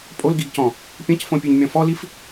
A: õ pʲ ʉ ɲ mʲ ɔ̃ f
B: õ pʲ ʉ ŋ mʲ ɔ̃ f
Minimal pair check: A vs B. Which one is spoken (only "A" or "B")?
A